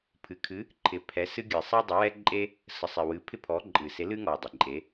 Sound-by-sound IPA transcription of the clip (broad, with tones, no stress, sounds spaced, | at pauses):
pʰ ɨ˨˩ kʰ ɨ˨˦ | ǃʰ ɪ˨˦ pʰ ɛ˨˦ s ɨ˦ ɡʲ ɨ˨˩ sˤ ɛ˦ dˤ ə˨˦ w ɛ˦ ǃʼ e˦ | s ə˨˩ sˤ ɪ˨˩ w ɨ˨˦ pʰ ɪ˦ pʰ ɔ˨˦ ǃʼ ɨ˨˩ s e˨˦ l ɨ˦ ŋ ɔ˨˩ dˤ ɪ˨˩ ǃʼ e˨˦